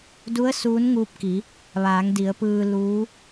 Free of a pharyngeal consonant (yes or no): yes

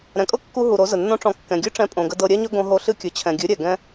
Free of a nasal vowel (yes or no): no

